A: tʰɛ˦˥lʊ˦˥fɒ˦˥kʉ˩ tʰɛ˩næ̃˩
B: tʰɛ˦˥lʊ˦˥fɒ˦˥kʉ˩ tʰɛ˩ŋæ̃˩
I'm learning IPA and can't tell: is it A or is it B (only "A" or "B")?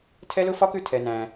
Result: A